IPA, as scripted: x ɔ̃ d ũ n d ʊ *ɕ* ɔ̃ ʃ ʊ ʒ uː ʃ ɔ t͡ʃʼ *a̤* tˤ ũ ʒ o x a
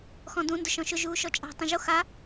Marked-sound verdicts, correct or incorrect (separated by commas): incorrect, correct